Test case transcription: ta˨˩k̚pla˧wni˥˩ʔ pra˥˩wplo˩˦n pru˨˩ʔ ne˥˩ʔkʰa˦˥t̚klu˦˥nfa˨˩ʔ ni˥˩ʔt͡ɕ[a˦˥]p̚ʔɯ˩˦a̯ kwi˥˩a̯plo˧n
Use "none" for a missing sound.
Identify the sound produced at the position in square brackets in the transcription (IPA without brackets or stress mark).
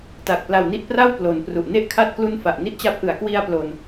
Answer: a˦˥